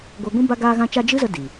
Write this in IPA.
ɡʷ a˧ ɡʷ ĩ˦ b a˧ ɡ aː˧ ɣ ã˧ t͡ʃ a˧ d͡ʒ ɨ˦ z ə˧ d i˨

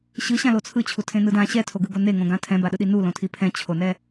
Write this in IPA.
ɕ ɯ ɕ ã l o t͡sʰ ɯ t͡ɕʰ u tʰ ẽ n ɯ d ã ɕ ɛ tʰ o ɡ ɯ ɡ o n e ŋ õ ɡ ã tʰ ɛ̃ b a ɗ ɯ ɗ i n u l õ tʰ i pʰ ɛ̃ t͡ɕʰ o n ɛ

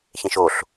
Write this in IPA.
ç ẽ ʃ o ɬ

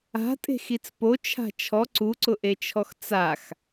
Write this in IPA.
a̤ tʼ e̤ x i t͡s p o t͡ʃʰ a̤ t͡ʃʰ ɔ ǀ u ǀ ʊ ʔ e t͡ʃʰ ɔ x t͡s a x

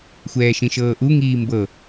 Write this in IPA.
xʷ ɛː ʃ ĩ ʃ ɤː ʔ u ŋ iː m b ɤ

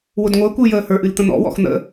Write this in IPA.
w ʊ d ŋʷ əː kʷ ɨː j əː h ə˞ ʔ ɨ l t̪ ə̃ n̪ ɔ̰ w ɔ̰ x n̪ ə̰

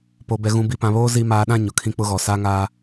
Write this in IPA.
p o˨ b ɛ˨ ɣ ũ˨ b i˨ p ã˨ β oː˦ z i˦ m aː˨ ɗ ã˦˨ ɲ ʊ˨ kʰ ĩ˦ k͡p ʊ˦ ɣ ɔ˨ s a˦ ŋ aː˦

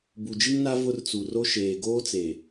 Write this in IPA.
b u˨ d͡ʒ i˦ ŋ n a˦ v ʊ˦ r t͡s u˨ r o˦ ʃ eː˨ ɡ oː˦ t͡s e˨

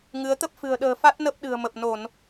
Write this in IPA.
ŋ ɨ˨˦ ə̯ t̪ ə˦˥ p̚ f ɨ̤˨˩ ə̯ ɗ ə̤ː˨˩ f a˦˥ t̚ n ə˦˥ p̚ ɗ ɨ̤˨˩ ə̯ m ə˨˩ p̚ n o˧˩˨ n

